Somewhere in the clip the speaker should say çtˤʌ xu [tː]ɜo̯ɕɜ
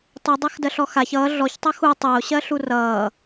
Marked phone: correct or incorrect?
incorrect